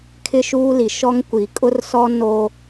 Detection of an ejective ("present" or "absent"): present